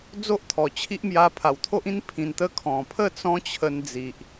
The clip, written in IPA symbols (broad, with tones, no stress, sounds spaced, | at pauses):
d͡z o˦ ʔ t̪ʰ ɔ˨˩ t͡ɕʰ i˦ ʔ m j a˧ pʰ a˨˩ w t̪ʰ o˦ ʔ ĩ˦ n pʰ ĩ˧ n t̪ ə˦ kʰ ɔ̃˨˩ pʰ ə˥˧ t͡s ɔ̃˦ t͡ɕʰ ə˧ n d͡z i˨ ʔ